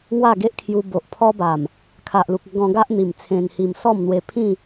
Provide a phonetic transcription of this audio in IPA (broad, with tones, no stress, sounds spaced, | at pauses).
ŋ w a˥˧ ɡ e˦ ʔ kʰ j u˧ b o˨ ʔ pʰ ɔ˦ b a˨˩ m | kʰ a˨ ʔ l u˨ k̚ ə˧ ɡ ɔ̃˧ ɡ a˦ ʔ n̪ i˨˩ m t͡sʰ ẽ˧ n h i˧ m s ɔ˥˧ m n̪ w e˧ pʰ ĩ˥˧